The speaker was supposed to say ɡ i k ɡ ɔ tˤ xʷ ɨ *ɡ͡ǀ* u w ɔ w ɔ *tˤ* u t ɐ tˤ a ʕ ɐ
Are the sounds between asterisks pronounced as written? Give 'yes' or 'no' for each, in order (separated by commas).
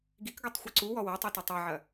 no, yes